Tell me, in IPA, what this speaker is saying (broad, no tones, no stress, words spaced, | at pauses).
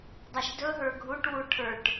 dˤæʃdɵɦə˞ ɡʱuʈwu ʈʰə˞ʈ